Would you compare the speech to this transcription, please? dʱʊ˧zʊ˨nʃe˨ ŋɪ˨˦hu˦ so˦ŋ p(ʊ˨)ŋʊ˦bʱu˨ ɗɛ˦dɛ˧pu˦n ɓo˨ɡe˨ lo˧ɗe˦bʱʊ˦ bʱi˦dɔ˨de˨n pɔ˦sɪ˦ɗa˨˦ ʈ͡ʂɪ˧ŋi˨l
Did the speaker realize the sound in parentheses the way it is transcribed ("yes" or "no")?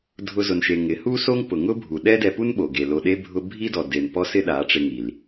yes